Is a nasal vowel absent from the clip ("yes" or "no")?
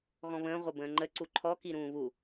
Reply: no